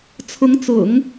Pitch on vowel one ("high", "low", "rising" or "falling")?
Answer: rising